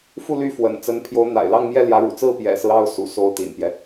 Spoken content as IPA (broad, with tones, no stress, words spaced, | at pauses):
fu˥˧ly˥˩fwə̰˨˩nt͡sə˧˥n pʰjo˧˥ʊ̯n̪a̰˨˩ɪ̯lɑ˥˧ŋ mjɛ˥˩ljä˧˥ɻṵ˨˩ t͡sɹ̩˥˩pjɛ̰˨˩sɹ̩˦ ɑ˥ʊ̯ sṵ˨˩so˥˩ʊ̯t̪ḭ˨˩npjɛ˦